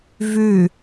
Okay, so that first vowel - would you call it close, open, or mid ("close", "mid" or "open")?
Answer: close